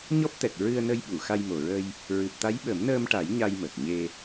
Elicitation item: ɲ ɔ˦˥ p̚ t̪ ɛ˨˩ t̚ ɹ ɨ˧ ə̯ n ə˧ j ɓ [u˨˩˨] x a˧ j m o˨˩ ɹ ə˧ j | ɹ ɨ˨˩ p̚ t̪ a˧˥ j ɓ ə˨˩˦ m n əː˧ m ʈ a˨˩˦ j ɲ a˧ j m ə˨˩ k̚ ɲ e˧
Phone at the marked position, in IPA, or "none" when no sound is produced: u˨˩˨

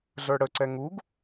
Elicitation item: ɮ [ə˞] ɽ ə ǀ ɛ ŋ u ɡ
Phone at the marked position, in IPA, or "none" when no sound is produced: ə˞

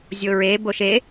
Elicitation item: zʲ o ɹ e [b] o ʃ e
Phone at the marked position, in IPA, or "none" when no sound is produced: b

